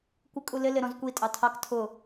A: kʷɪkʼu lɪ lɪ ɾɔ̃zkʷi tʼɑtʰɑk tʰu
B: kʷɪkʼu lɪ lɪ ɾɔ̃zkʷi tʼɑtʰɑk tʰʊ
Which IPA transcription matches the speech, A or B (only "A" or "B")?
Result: B